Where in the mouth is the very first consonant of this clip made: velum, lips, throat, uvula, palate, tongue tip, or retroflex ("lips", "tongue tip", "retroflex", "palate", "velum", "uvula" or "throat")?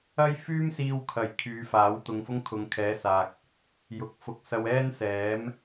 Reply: palate